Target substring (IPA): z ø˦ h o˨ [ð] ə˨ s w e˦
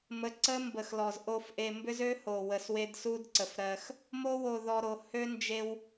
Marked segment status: incorrect: w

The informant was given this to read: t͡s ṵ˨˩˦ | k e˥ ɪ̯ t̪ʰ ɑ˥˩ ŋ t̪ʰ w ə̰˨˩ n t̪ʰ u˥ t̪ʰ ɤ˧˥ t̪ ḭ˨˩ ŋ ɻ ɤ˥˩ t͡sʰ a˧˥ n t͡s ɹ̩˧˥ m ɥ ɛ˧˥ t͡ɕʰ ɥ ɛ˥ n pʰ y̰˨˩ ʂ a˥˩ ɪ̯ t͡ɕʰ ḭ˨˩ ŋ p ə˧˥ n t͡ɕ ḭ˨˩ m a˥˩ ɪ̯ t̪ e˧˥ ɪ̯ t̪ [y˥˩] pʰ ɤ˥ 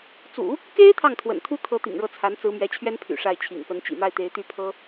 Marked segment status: correct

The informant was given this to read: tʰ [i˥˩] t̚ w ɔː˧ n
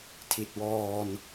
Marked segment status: incorrect: i˨˩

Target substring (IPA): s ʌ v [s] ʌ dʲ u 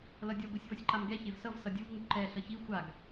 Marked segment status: correct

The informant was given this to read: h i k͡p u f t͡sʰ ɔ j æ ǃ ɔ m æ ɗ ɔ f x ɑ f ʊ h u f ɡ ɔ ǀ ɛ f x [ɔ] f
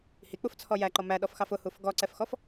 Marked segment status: correct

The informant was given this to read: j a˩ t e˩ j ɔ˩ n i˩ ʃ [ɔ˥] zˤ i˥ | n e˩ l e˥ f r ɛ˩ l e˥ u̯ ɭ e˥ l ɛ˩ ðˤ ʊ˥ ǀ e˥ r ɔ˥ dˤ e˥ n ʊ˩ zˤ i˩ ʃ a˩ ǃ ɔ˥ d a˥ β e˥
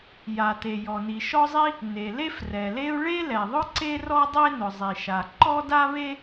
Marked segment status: correct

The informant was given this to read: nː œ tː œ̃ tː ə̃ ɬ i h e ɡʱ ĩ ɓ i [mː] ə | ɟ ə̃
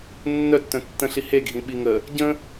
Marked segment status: incorrect: ŋ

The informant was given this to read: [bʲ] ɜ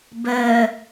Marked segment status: incorrect: b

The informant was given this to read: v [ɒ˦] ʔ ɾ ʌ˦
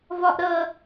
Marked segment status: correct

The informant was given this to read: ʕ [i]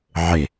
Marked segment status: incorrect: e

